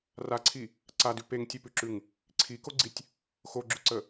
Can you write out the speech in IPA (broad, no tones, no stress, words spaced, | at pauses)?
raǀʰi | ǀadʉ peŋtʲepʉǁʉŋ | ǀʰikoɡ͡ǀitʲ | xoɡ͡ǁʉǀə